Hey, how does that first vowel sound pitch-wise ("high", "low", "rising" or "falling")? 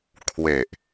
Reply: low